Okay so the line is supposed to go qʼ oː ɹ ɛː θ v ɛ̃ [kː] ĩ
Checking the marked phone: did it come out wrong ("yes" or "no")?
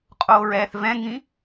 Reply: yes